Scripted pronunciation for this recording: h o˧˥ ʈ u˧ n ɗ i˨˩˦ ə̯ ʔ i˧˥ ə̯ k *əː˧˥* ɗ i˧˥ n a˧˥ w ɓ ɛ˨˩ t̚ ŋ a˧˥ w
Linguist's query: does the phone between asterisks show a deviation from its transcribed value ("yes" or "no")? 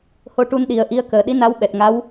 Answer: yes